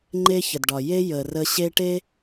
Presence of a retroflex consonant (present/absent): present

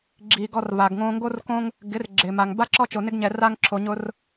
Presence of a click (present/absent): present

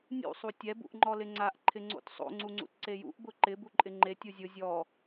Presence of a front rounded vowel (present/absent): absent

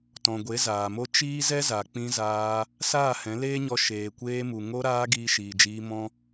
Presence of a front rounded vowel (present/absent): absent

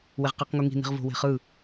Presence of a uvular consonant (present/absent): present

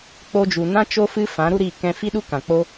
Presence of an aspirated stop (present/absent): absent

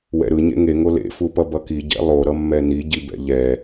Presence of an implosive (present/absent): absent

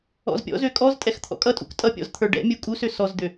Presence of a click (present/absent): absent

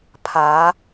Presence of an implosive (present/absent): absent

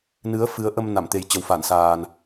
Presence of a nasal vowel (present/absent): absent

